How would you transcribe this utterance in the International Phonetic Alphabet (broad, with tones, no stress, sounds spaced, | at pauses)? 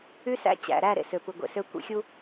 y˦ s æ̰˦ t͡ɕ æ̰˨ ɾ æ˦˨ ɾ ḛ˨ s ø˨ p ɯ˨ ɡʷ ḛ˨ s ø˦ kʷ ḭ˦ xʲ u˦